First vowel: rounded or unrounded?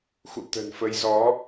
rounded